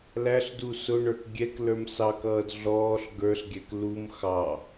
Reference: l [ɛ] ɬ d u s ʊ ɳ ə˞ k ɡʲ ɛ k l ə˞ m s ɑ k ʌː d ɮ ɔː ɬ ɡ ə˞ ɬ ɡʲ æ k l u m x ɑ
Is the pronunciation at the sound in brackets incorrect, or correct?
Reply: incorrect: æ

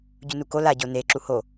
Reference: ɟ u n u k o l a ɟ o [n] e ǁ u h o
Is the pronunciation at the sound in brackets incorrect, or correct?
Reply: correct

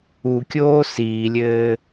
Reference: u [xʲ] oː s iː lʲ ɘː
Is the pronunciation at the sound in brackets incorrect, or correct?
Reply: incorrect: kʲ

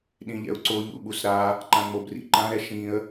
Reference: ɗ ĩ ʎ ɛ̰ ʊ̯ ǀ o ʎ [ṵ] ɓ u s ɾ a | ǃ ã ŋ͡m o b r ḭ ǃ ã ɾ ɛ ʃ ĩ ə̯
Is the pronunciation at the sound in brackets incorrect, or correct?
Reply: correct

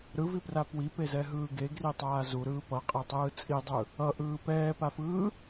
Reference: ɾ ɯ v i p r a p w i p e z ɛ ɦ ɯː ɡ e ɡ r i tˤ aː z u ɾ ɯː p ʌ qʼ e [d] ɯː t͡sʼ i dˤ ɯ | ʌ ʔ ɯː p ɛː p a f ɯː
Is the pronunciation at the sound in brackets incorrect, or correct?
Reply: incorrect: tˤ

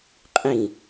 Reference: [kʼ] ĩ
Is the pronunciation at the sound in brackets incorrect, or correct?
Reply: incorrect: qʼ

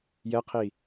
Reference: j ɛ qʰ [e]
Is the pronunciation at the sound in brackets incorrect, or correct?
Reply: incorrect: i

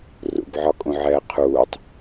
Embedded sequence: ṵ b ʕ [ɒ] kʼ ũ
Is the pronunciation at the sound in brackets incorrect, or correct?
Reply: correct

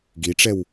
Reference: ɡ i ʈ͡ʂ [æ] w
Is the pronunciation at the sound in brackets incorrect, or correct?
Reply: incorrect: ɛ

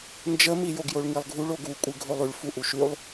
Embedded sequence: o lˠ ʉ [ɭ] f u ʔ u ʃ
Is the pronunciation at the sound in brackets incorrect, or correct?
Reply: correct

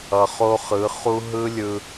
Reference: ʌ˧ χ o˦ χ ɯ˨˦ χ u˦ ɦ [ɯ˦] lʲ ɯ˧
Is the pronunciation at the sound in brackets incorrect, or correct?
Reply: correct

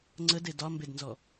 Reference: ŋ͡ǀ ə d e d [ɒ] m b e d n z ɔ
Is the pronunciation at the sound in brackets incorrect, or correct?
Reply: correct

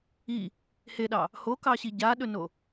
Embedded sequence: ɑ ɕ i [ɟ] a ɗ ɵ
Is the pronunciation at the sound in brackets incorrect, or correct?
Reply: correct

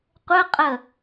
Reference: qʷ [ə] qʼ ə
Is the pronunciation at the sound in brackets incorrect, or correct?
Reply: correct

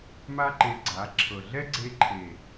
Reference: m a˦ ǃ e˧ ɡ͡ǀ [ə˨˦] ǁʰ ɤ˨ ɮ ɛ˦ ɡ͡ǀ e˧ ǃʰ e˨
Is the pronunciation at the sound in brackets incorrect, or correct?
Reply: incorrect: a˨˦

